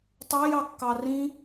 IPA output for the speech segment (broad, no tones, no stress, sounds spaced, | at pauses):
tˤ ɑ j ɑ kː ɑ r ĩ